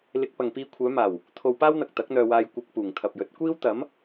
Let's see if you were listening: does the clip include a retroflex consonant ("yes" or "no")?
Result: no